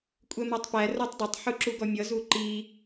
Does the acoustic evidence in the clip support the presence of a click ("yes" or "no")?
yes